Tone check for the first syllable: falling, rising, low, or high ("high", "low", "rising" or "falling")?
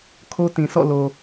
high